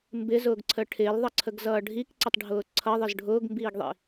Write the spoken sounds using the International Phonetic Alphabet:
mbɪzʊːɡǀʰə ʈʰɪːlðˤʌǀʰəɡzʌː ɖʱikǀətˤɖʱʊː ǀʰʌðˤəz ɖʱʊːɡmbiːɡðˤḭ

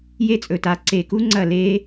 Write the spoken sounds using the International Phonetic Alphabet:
je˦t͡sʼɵ˨ta˨ ǀe˨ku˦ ŋ͡ǀɐ˦˨ le˦

